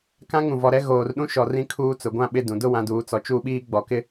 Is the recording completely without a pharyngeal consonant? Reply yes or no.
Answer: yes